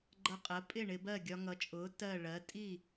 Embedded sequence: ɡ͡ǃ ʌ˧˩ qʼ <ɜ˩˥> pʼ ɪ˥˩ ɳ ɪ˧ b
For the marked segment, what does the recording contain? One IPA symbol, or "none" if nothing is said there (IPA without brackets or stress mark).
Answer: ɜ˩˥